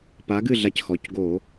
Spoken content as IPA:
p a˨˥ ɡ ɨ˥˨ ɮ a˧ c x ɔ˩˧˩ c ɡ o˧˩˧

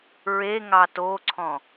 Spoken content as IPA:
ɹ e ŋ ɑ t o ǀʰ ɔ̃

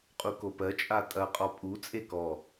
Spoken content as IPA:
qʼ u k o p ɜ t͡ʃʼ a tʼ ɐ qʼ ɔ pʼ u t͡sʼ e k ɔ

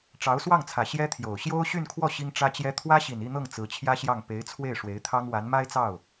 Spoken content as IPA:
ʈ͡ʂ ɑ˧˥ ʊ̯ s w ɑ˥˩ ŋ t͡sʰ ä˨˩ ɕ j ɛ˥ t̪ʰ j o˨˩ ʊ̯ ɕ j o˥ ʊ̯ ɕ y˥˧ n kʰ w ɔ˥˩ ɕ i˥ ŋ ʈ͡ʂ ä˥ t͡ɕ j ɛ˥ t̪ʰ w ä˥ ɕ i˨˩ n i˥˧ n̪ ɤ˥˩ ŋ t͡s ɹ̩˧˥ t͡ɕʰ j ä˥ ɕ j ɑ˥˩ ŋ p e˧˥ ɪ̯ t͡sʰ w e˥˩ ɪ̯ ʂ w e˧˥ ɪ̯ t̪ʰ ɑ˥ ŋ w a˧˥ n m a˥ ɪ̯ t͡s ɑ˥˩ ʊ̯

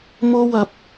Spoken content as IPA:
m o˥ w ɐ˧ p̚

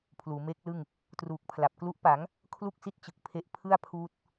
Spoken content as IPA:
pʰ l uː˩˦ m eː˦˥ k̚ l ɯ˥˩ ŋ | t r uː˨˩ k̚ pʰ l a˨˩ p̚ k l u˦˥ ʔ p a˩˦ ŋ | kʰ l u˥˩ k̚ s i˦˥ t̚ t͡ɕ ɯ˨˩ k̚ pʰ e˦˥ ʔ pʰ ɯ˥˩ a̯ pʰ uː˦˥ t̚

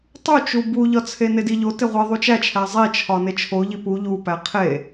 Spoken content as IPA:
tˤ u t͡ʃ u b u ʎ ɒ t͡sʰ e n e d i ʎ o t e ʁʷ e ðˤ u t͡ʃ æ t͡ʃʰ æ zˤ i t͡ʃʰ ɒ n e t͡ʃʰ o ʎ i p u ʎ u p æ qʰ e

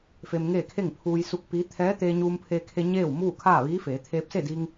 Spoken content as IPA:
f e˧ m ŋ eː˥˨ kʰ e˥˨ ŋ pʰ uː˧ j s u˧˥ k̚ p i˧˥ t̪ʰ ɛː˧˥ t̪ eː˧ ɲ uː˧ m pʰ eː˧ kʰ e˧ ɲ eː˥˨ w m uː˥˨ kʰ aː˥˨ ʋ iː˧˥ f eː˩˧ t̪ʰ eː˧ p̚ s e˥˨ d i˧ ŋ

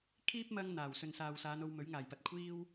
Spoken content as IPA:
kʰ iː˥ p̚ m ɐ˧ ŋ n̪ aː˨˩ w s ɵ˨ n s aː˨ w s aː˨˧ n o˧ w m ɵ˨˥ ɥ ŋ aː˨˩ j p ɐ˧ t̚ kʷʰ iː˥ w

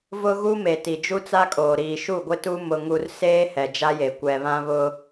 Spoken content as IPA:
v ʊ˦ ɣ u˦ m e˨ t i˨ d͡ʒ u˦ t͡s a˦ kʼ oː˨ ɾ iː˨ ʃ u˦˨ ɡʷ ɪ˦ t u˦ m ʊ˦ ŋ u˦ r s eː˦ h ɛ˨ d͡ʒ a˦ j e˨ kʷ ɛ˨ β ã˦ β ʊ˦

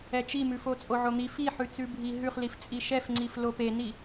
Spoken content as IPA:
ɛ t͡ʃ i m ʉ f o t͡sʼ o ʕ o n̪ i f i ħ ʉ t͡s ʉ bʱ i ɦ ʉ χ l i f t͡sʼ i ʃ ɛ f ŋ͡ǀ i f l o p e n i

